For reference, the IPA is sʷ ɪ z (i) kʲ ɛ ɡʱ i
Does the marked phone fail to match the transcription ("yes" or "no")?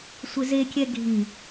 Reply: yes